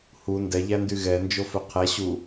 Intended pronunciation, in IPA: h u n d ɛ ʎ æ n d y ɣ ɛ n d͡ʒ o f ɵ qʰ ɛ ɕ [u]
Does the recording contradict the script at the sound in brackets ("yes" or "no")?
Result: no